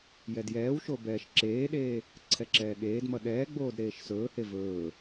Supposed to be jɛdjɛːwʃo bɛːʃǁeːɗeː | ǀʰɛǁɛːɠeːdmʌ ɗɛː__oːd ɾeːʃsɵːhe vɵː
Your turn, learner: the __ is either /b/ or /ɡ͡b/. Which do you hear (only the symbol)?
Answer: ɡ͡b